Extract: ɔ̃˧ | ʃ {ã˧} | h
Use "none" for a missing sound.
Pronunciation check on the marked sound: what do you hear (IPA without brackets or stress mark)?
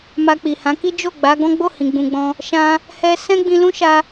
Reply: ã˧